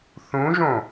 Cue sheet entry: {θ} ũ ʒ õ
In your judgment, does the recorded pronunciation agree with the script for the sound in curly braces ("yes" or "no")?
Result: yes